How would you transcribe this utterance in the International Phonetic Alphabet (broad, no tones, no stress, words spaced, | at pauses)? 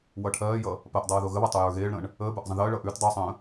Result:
wʌʈʰɜːjʌ | pɜʔdˤʌː ðoɣəβʌ tˤojə˞ɣeːɭɾə̃ːɳ | əːbə˞ʔ zˤə̃ðəːɭʌːʔ ʉt dˤosˤə̃ː